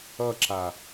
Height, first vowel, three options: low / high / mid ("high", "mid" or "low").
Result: mid